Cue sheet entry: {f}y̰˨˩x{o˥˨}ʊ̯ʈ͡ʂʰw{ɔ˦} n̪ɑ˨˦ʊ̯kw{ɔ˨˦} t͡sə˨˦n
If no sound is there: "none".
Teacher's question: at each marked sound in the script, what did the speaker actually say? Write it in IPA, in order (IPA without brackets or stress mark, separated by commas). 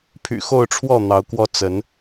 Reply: pʰ, o˥˨, ɔ˥˨, ɔ˦